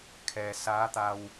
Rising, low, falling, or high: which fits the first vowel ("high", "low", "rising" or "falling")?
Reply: low